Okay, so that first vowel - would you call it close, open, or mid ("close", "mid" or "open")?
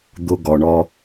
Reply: close